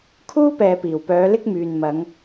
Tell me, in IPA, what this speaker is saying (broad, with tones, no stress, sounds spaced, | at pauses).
kʰ uː˥ p ɛː˨ p iː˨˩ w p œː˨˧ l ɪ˥ k̚ m yː˨ n m ɐ˨˧ ŋ